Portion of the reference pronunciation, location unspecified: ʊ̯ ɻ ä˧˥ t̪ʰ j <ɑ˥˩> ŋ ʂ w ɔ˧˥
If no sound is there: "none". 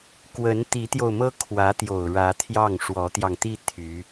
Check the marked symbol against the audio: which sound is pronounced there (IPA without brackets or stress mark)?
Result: ɑ˥˩